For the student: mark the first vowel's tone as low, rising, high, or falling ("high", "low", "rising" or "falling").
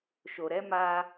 low